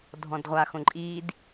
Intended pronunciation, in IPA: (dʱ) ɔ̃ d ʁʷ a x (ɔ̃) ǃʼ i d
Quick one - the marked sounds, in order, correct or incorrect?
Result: correct, incorrect

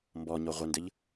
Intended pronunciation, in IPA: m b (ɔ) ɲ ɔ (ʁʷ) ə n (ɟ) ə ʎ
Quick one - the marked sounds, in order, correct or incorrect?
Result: correct, correct, incorrect

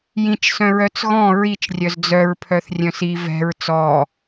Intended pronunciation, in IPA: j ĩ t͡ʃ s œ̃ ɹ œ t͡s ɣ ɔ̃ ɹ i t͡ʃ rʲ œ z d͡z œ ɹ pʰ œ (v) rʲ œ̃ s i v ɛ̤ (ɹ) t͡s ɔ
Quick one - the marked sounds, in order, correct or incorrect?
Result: incorrect, correct

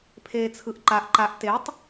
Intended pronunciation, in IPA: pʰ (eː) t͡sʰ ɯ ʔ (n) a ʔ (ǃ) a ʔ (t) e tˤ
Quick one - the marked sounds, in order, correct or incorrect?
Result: correct, incorrect, correct, correct

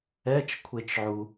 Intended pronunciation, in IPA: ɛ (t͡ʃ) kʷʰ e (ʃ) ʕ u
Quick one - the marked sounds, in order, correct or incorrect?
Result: correct, incorrect

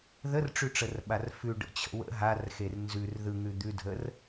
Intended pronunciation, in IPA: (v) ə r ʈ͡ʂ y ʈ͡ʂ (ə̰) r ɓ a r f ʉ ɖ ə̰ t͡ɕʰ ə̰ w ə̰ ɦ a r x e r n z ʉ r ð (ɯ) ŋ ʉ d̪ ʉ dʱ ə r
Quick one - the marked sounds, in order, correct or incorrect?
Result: incorrect, incorrect, correct

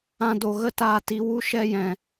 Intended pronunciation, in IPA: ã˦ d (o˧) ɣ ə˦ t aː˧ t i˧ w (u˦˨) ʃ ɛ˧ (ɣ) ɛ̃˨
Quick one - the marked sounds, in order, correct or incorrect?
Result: correct, incorrect, incorrect

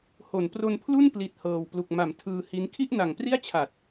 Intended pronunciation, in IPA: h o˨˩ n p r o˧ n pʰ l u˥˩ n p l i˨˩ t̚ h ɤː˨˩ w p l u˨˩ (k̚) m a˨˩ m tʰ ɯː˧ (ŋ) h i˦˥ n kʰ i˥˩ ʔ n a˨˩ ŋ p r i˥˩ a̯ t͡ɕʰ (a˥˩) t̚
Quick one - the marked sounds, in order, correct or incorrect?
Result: correct, incorrect, incorrect

